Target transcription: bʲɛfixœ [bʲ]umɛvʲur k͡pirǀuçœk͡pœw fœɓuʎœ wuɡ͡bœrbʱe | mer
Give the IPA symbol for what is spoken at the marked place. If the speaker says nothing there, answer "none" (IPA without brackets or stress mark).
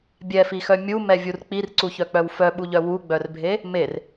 mʲ